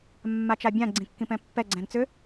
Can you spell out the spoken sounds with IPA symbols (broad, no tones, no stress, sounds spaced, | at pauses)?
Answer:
mː a t͡ʃ a bʲ ã ɡ͡ǀ ĩ kː ĩ p ɛ̃ pː ɛ ɡ͡ǀ ɛ̃ n t͡s ʏ